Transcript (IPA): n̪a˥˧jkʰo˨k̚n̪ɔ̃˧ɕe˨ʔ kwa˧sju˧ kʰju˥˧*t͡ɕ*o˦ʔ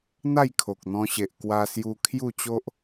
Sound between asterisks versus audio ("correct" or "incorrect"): correct